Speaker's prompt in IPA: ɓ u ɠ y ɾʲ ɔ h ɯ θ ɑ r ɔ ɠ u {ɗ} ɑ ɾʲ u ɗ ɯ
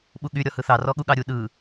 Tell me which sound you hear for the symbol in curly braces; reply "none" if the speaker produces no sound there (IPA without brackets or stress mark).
ɠ